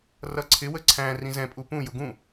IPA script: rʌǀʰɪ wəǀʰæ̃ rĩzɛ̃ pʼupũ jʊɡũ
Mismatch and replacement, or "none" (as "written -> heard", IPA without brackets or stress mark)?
none